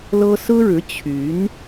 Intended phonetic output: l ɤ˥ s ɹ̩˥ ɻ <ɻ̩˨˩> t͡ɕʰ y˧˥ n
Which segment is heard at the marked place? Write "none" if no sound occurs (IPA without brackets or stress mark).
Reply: ɻ̩˧˥